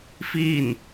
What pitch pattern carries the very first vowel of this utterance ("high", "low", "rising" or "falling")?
falling